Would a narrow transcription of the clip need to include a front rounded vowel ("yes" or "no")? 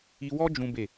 no